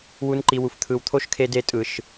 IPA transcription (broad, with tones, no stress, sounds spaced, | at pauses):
w u˦ n ǃ i˧ w u˨ f t̪ʰ ɯ˨ w t̪ʰ o˦ ʃ kʰ e˧ d e˦ tʼ ɯ˨ ʃ